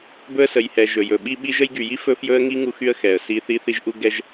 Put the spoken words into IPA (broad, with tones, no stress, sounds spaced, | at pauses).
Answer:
b ɵ˦ ə̯ s ə˨ j h ɛ˨ ʒ ɵ˨ j ɵ˨ ɓ i˦ ɓ i˦ ʒ ə˦ j ɡ y˨ j i˦ f ɵ˦ f j ɵ˦ ə̯ ŋ i˦ ŋ u˦ x y˦ ə̯ x ɛ˨ ə̯ s i˦ θ i˦ θ i˦ ʒ ʔ u˦ ɡ ɛ˦ ʒ